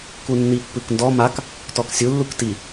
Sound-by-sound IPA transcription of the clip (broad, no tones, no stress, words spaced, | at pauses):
kunːipːɯkndɔ mak | tɔksʲu lːukti